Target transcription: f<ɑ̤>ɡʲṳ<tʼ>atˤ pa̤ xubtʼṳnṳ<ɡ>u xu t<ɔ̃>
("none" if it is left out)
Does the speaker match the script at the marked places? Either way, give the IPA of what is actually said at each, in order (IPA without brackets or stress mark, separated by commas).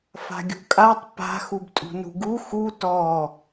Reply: a̤, kʼ, ɡ, ɔ